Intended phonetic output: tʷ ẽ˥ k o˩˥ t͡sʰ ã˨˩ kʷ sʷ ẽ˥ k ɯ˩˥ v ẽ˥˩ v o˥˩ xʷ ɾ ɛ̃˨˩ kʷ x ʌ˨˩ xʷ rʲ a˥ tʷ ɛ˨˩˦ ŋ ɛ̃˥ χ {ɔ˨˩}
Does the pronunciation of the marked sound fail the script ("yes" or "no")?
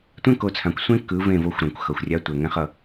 yes